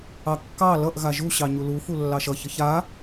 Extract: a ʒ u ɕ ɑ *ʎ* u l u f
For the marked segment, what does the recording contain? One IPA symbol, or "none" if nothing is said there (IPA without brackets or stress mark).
ɲ